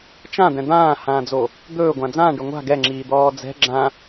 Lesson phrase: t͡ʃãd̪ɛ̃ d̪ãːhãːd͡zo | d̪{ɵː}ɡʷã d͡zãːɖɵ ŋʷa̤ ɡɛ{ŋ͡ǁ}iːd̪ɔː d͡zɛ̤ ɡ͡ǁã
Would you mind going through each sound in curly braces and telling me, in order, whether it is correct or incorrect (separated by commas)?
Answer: correct, correct